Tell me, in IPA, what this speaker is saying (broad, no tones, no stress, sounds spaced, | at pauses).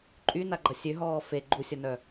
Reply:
ǃʼ y n a ɡ͡ǃ ɐ sʲ ø ɦ ɔː f e ɡ͡ǃ u sʲ ɐ n œ